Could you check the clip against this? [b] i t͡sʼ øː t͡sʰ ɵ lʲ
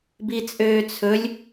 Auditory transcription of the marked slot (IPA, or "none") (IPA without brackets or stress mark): b